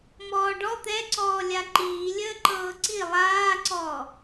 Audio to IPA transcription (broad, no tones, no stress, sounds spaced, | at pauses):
m ɔː ɖ ɔ t̪ ɛ ǀ ɔː lʲ a ǃ iː lʲ əː ǃ ɤː ǀ i lˠ aː ǀ ɔː